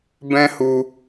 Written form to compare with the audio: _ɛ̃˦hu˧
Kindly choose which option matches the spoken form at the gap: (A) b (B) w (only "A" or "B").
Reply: A